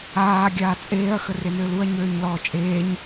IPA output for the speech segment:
aː ɡʲ aː t͡sʼ eː ɐ̯ x ə r e n øː l u ɐ̯ ɲ øː ɲ l ɔː t͡ʃʼ eː ɲ

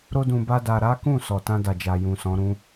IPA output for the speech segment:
ɾ o˦ d ũ˧ b a˦ d a˧ ɾ a˦ k ũ˦˨ s ɔ˨ t ã˧ d a˨ d͡ʒ a˨ j ũ˨ s ɔ̃˨˦ ɾ ũ˦

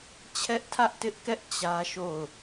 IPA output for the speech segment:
t͡ɕʰ ɛ˦ ʔ tʰ ä˦ ʔ t ɪ˦ ʔ k ɛ˦ ʔ t͡ɕ ä˦ ʃ o˦˨ ʊ̯

